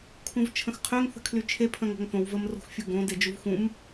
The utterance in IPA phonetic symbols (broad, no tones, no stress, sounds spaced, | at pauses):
kʰ ũ v t͡ʃʰ ə̃ x qʰ ʏː ŋ θ ə̤ kʰ l y t͡ʃʰ e pʰ ə̃ː ŋ o̤ ŋ θ õ w v ə m r o̤ x fʲ u ɡ õ d e d͡ʒ u v x ũ m